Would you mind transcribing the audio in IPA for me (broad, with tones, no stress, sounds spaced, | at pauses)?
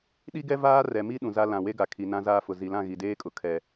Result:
ɗ i˦ ɡ ɛ˦ v aː˦ r ɛ˨ m i˦ ɗ ũ˨ z a˦ l ã˨ w e˦ ɡ a˨ kʰ i˨ n ã˦ z aː˦ f ʊ˨ z i˨ l ã˦˨ ɣ i˨ d eː˦ kʼ ʊ˨ kʰ ɛ˨